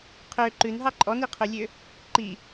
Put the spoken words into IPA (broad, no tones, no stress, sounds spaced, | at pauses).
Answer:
qʰ ø ǃ ʉ n ɦ ɑ ǃʼ ɔ n i qʰ ø lʲ ø | ǃ i